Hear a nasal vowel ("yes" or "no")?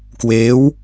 no